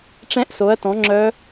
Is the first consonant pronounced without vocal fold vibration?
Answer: yes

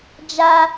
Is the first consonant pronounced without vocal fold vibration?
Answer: no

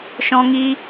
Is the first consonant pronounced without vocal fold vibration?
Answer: yes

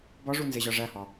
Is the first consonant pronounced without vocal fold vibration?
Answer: no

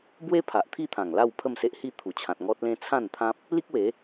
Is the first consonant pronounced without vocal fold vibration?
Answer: no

